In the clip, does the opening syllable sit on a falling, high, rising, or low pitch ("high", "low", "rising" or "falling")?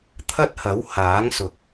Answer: high